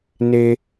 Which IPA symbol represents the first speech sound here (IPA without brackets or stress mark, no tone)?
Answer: n